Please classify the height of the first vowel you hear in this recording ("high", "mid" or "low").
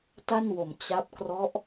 low